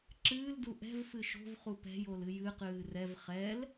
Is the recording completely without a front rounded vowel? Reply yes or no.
yes